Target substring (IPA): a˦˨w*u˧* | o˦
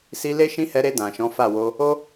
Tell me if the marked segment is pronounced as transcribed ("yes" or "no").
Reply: no